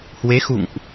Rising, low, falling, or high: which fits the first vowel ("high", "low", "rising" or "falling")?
rising